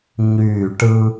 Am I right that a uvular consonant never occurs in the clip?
yes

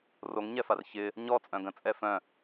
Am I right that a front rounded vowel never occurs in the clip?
no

